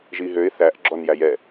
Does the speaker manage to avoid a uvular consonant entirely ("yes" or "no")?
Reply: yes